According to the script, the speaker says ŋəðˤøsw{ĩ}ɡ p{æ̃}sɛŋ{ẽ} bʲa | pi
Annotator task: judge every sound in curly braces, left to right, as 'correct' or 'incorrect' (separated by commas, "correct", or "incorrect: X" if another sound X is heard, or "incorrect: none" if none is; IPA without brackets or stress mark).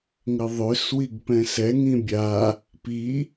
incorrect: i, incorrect: ɛ̃, incorrect: ĩ